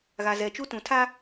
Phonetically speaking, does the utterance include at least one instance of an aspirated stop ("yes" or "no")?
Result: yes